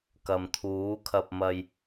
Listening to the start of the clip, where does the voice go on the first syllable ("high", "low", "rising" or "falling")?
low